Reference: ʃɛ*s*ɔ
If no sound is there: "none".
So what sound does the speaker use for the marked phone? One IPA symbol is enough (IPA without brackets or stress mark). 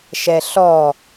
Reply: ɬ